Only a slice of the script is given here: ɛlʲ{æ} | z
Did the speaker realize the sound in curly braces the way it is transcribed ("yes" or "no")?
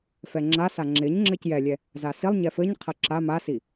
no